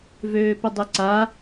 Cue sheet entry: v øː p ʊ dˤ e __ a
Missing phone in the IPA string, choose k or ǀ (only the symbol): ǀ